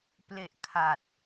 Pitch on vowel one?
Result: low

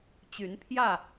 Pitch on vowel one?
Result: rising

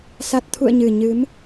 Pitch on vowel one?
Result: low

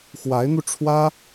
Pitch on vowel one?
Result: rising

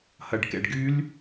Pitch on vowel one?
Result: low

